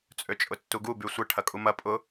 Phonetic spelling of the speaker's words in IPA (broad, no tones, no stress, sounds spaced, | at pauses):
t͡sʼ ø t͡ʃʼ ʊ tː u ɡ u b y sʷ ə ʈʰ ɐ kʼ u m ɐ pʼ ʊ